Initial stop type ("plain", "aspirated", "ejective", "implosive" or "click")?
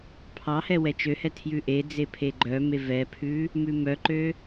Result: aspirated